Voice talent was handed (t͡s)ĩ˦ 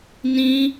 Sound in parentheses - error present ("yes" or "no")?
yes